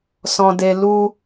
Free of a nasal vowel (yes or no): no